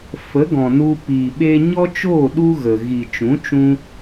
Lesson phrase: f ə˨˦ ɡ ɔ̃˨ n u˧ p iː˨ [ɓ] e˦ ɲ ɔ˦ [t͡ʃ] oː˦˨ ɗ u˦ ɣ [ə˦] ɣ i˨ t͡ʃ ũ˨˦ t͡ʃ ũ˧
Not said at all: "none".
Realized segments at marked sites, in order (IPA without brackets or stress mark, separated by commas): ɓ, t͡ʃ, ə˨